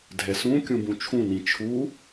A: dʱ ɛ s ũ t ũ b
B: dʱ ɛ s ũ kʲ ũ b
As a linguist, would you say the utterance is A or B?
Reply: B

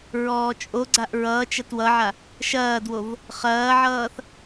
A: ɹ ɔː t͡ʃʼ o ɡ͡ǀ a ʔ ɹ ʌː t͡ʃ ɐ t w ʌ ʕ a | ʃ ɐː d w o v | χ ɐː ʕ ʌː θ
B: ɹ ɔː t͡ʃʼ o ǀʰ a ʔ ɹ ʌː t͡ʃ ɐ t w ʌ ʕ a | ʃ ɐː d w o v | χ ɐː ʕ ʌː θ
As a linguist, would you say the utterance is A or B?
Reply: A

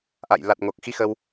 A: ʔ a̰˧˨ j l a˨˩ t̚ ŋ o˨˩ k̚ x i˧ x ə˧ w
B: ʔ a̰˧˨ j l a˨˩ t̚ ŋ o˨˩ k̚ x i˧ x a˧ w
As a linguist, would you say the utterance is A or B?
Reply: A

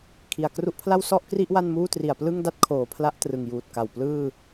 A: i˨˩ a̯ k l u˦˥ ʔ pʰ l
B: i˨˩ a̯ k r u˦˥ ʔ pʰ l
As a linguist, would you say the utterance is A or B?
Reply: B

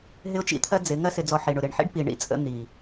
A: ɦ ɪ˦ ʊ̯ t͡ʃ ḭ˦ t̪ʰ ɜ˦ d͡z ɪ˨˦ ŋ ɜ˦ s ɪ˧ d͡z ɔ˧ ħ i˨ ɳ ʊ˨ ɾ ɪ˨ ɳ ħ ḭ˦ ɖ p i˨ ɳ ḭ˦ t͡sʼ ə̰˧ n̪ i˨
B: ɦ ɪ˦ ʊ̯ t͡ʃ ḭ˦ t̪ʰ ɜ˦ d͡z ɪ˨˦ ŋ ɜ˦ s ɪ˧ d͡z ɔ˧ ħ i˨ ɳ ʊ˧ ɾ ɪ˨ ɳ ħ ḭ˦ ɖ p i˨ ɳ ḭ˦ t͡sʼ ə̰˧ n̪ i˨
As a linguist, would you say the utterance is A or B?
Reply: A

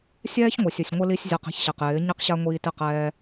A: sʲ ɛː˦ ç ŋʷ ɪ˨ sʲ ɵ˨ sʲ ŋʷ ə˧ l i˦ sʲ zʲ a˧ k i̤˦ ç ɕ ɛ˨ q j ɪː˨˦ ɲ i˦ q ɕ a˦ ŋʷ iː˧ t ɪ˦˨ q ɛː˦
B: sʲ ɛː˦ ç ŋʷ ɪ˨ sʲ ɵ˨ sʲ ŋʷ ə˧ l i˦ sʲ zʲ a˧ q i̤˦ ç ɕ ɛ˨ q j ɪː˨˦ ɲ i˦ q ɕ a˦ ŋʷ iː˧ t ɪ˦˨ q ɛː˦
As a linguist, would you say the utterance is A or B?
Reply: B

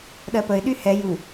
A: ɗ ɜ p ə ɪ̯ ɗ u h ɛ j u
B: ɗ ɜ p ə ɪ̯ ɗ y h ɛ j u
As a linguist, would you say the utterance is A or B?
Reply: B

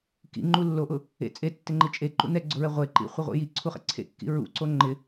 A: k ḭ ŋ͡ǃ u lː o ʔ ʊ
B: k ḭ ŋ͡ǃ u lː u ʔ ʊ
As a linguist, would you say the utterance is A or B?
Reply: A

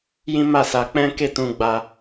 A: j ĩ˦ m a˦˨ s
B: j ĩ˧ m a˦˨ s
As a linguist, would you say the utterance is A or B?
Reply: A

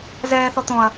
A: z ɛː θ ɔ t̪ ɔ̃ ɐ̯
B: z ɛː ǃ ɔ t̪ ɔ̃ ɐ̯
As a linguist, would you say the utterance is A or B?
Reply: A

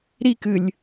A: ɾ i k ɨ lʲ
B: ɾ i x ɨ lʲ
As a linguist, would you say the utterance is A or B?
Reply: A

